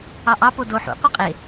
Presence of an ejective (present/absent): present